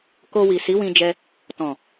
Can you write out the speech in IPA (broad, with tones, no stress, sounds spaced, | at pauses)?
k o˧ w i˨ s i˨˦ w ĩ˧ d͡ʒ ɛ˧ | t ɔ̃˨